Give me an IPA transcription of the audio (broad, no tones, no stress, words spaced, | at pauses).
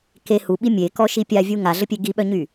ke huɓi mʲekɔʃi pʲavʲu ŋaɮəpʲe ɡiɓœɲy